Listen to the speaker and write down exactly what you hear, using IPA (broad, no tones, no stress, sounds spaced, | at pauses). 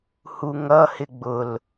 h u ŋ ʌ h ɪ ɡ͡b ʊ l